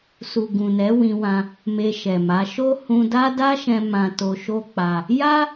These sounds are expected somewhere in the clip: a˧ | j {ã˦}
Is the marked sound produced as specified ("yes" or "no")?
no